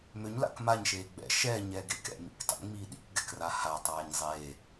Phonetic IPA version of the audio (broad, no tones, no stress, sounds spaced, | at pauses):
m ø ɲ l a̰ k m a ɲ ʃ eː ɡ͡b ɛ̰ ʃ ɛː ɲ ɛː ɡ e k ɛ̰ m ḭ k tˤ ḭ ŋ͡m iː ɗ ḭ k ɡ ɛ k r a h a tˤ aː ɲ zˤ eː